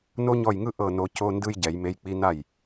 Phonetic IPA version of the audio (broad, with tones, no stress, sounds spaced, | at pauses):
n o˥ ɲ ɔ˥˩ j ŋ ɯ˥ ʔ ɤ˥˩ n o˨˦ c o˧˥˧ n d ɯ˥ j ɟ ɛ˨˩˦ j m e˧˥˧ j k͡p i˥ n a˥˩ j